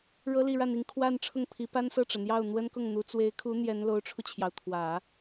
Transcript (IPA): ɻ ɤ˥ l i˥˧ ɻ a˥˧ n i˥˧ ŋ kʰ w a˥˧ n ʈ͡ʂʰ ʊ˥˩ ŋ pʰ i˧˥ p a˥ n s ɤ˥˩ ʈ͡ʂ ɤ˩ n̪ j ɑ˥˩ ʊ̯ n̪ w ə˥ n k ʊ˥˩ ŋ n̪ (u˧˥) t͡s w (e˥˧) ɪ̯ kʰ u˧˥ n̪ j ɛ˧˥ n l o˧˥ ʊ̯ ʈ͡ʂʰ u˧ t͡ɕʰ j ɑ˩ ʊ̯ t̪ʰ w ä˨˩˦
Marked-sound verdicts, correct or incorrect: correct, incorrect

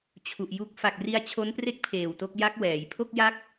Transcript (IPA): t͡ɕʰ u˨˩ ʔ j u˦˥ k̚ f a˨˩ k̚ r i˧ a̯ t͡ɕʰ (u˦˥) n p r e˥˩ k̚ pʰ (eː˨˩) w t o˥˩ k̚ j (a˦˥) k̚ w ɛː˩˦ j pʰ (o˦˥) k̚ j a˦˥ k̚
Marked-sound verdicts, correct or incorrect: incorrect, correct, correct, incorrect

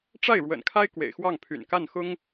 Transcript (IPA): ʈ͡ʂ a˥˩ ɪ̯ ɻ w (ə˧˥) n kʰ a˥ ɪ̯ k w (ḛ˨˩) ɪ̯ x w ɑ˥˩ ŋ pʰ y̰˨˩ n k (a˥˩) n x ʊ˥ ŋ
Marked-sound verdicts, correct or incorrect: incorrect, correct, correct

